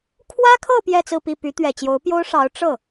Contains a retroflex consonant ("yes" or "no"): yes